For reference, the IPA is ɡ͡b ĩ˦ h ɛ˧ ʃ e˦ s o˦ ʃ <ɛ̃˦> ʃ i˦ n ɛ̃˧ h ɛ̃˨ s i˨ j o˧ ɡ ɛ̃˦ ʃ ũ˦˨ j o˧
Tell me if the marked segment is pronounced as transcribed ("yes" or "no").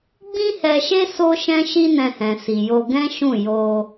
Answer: yes